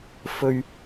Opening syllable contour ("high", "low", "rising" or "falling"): low